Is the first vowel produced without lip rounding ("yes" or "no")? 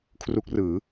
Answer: no